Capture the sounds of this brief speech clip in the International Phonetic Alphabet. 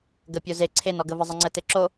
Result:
ɡəpʲo ze ǀʰenɔɡə vəzˤəŋ͡ǀə teǁo

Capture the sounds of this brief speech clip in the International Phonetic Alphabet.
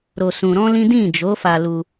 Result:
ɾo˧sũ˧ɾɔ̃˦lĩ˦ dĩ˦˨d͡ʒo˨˦ fa˧lu˧

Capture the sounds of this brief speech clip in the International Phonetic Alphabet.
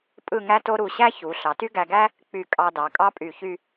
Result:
pʼɯ˥˧ŋæ˥to˥ ɾu˧˩ɕæ˥çu˩˧ ɬɑ˩˧ty˥ɡæ˧ɡæ˥ | k͡py˧˩kʼɑ˧dɑ˩˧ kʼɑ˥pʼy˧˩çy˥˧

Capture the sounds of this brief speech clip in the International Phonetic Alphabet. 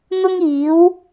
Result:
n̪ʊ˥ŋiː˨˥w

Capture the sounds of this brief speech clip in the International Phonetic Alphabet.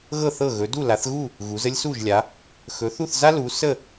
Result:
ɣɤ˥˨θɤ˥˨ ɣɵ˨˦du˥˨ la˨˦θɣu˥˨ | ɣu˨˦zə˥lʲsu˥˨ʒ lʲa˨˦ | xɵ˨˦θu˥˨θza˥ lu˨˦sə˥˨

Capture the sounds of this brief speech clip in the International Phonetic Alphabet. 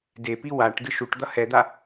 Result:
depi waʈdɯʃ uʈ d̪ʌhɛd̪a

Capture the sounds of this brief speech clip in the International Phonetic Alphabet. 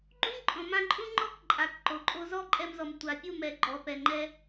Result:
ɡ͡ǃũ˦ǃʼɔ̃˨mã˧ ǃʼũ˦ŋ͡ǃɔ˦k ǃʼa˨k ǃo˨ǃʼo˧ zɔ˦ǃʼɛ˧mzɔ˨m tʷa˨pʲu˦˨mɛ˨ ɡ͡ǃɔ˨pɛ˨ŋ͡ǃɛ˧

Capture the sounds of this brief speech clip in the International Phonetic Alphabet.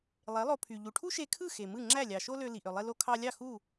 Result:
lˠe˩˥lˠo˧pʰy˩ ʎu˩ʈʰu˥ʃe˧kʰɯ˥˩ xe˩mɯ˥˩ ŋ͡ǁæ˥˩lʲɑ˩ʃo˥lø˧ li˩ʔø˩lˠe˧ lo˧kʰɑ˧lʲɑ˥˩ xu˥˩

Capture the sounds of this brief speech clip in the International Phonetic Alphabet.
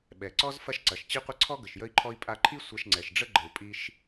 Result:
ɓɛ˩ǀɔ˥z fɐ˥ʃǀɐ˩ʃ t͡ɕi˥qʷə˥ ǀʰɔ˥ ɡə˩ʃjə˥i̯ǃʰɔ˥i̯ pʼa˧ǃʰi˥ sʷɐ˧ʃŋ͡ǀɛ˩ʃɖ͡ʐə˥ ɡ͡ǃə˩u̯pʼi˧ʃ

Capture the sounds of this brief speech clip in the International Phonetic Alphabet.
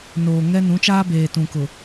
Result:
noː˨ŋɛ˦ nũ˨˦t͡ʃaː˦ beː˨tũ˨kʊ˨

